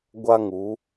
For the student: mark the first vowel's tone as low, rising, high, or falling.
high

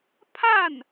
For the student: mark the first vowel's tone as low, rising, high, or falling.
falling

